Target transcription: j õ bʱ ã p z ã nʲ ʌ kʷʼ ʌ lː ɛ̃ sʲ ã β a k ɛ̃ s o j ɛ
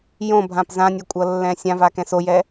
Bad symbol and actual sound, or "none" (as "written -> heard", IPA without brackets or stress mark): β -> v